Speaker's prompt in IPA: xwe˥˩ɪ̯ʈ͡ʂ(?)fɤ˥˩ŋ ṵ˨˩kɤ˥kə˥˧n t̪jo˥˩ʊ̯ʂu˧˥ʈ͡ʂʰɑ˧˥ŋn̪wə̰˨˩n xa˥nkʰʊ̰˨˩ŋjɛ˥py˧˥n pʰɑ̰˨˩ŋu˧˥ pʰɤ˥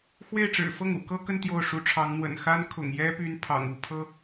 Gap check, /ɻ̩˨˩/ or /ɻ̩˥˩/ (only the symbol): ɻ̩˨˩